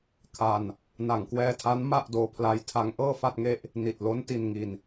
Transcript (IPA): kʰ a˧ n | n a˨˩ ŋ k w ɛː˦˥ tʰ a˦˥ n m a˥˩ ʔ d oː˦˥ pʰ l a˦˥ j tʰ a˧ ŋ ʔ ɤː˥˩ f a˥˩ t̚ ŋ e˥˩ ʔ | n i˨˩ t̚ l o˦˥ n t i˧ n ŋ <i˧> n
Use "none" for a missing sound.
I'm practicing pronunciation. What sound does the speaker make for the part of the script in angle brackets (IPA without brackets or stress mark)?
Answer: i˧